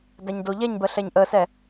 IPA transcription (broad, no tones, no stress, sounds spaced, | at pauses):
d æ ɲ d o ʎ ɛ ɲ b ə ɬ ɛ ɲ ʔ ə s ɛ